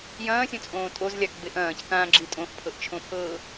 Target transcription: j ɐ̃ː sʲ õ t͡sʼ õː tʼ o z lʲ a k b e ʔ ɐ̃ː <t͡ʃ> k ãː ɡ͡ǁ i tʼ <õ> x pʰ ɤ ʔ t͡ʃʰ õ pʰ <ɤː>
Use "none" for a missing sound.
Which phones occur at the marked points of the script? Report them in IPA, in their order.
c, õ, ɤː

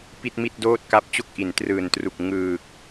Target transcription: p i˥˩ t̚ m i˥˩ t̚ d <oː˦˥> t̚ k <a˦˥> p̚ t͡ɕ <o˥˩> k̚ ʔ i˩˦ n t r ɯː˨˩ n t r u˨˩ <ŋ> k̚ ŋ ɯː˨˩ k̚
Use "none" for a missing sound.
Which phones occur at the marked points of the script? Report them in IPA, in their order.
oː˥˩, a˦˥, o˥˩, none

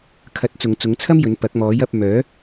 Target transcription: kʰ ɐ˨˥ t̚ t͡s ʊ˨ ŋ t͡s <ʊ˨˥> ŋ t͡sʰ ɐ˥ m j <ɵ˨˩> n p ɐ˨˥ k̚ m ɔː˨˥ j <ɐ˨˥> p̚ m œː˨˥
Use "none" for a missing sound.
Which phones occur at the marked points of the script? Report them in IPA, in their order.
ʊ˨˥, ɵ˨˥, ɐ˨˥

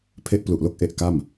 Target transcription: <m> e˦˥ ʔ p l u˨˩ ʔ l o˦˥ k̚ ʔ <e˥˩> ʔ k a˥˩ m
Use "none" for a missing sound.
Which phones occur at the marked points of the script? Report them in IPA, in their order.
pʰ, e˦˥

